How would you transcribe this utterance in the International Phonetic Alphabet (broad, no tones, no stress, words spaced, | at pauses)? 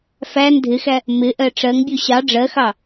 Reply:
fæn dʱɪxæ | mɪʔɜ ʈ͡ʂɜŋbʲu ɕɑ ɖ͡ʐɜxɑ